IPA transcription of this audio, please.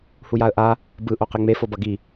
h u j a ə̯ ʔ a | b ɯ ʔ o q e ŋ͡m e f o b ʌ ɡ i

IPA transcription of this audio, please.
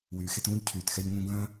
w yː˩ x e˧ t ũː˧ ʎ cʰ yː˩ t x ɛ˧ ʎ ŋ ũ˧ ɡ œ̃ː˥

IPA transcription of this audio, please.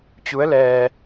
t͡ɕ u˧˥ ə̯ l ɛː˧

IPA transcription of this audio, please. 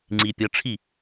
ŋ͡ǀ i pʲ ʌ ʈ͡ʂʰ i

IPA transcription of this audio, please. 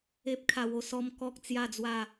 e˦ p̚ kʰ a˧ w o˧ s ɔ˦ m k ɔ˦ k̚ t͡s j a˥˧ d͡z w a˥˧

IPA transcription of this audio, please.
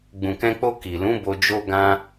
ɡ͡b ũ˨ k ɛ̃˧ k͡p o˧ k i˨ l ũ˨˦ b o˧ d͡ʒ o˦ ɡ ã˦

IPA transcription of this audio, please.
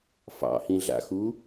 f ɑ̰ h ĩ ɮ a̰ x u

